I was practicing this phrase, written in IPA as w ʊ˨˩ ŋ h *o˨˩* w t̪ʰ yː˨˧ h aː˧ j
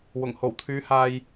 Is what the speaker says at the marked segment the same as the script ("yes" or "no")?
yes